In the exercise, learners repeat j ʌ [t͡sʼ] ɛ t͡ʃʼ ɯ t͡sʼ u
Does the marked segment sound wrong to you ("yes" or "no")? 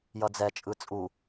yes